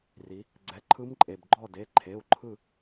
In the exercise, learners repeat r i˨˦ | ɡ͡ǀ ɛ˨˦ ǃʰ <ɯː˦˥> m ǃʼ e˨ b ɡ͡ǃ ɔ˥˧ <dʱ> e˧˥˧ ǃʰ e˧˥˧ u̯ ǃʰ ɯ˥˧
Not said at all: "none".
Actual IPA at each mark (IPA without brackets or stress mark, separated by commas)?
ɯ˦˥, d